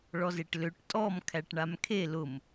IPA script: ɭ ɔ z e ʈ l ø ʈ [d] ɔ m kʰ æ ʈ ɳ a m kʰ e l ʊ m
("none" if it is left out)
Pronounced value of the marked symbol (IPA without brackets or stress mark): tʼ